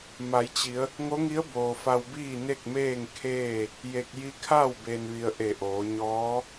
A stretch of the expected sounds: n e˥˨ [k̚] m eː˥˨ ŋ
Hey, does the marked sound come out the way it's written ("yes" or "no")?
yes